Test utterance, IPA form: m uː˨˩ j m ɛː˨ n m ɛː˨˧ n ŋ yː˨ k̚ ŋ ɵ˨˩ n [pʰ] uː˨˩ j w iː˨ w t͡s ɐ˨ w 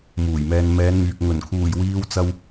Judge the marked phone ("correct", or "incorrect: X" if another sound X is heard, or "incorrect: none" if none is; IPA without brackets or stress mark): incorrect: kʰ